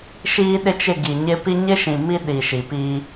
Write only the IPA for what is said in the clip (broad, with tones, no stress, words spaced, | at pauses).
ʃiː˦ɗɪ˦t͡ʃɪ˦˨ɡi˨ ɲɪ˦pi˦ ɲɪ˦ʃĩ˨ mi˦ɗi˨ ʃi˨pi˦